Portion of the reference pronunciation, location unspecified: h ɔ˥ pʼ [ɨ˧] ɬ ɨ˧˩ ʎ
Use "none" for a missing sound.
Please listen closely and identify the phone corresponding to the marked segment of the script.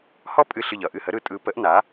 ɨ˧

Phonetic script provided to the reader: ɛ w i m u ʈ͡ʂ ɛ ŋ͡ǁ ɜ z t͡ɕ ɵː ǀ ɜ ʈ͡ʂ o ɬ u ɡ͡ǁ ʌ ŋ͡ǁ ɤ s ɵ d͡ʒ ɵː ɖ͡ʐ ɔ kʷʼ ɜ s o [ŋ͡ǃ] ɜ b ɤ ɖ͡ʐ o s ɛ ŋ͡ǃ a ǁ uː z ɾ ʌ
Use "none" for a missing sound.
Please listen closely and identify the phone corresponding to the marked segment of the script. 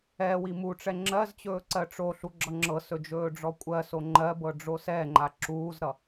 ŋ͡ǃ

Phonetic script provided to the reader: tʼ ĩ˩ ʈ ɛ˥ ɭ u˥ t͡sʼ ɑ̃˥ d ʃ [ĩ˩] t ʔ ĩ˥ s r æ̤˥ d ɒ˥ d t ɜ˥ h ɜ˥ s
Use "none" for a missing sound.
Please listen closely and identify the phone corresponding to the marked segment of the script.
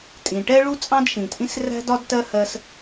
ĩ˩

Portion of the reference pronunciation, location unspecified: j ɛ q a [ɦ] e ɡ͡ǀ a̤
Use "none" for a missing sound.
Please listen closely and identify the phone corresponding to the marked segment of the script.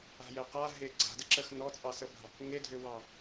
ɦ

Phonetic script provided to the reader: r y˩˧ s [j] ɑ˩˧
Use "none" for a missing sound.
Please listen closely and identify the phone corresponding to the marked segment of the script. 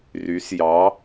j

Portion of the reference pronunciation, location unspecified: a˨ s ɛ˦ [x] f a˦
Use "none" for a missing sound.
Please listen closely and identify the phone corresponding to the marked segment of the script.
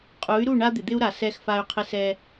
x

